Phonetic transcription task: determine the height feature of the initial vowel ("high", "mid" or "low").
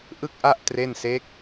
high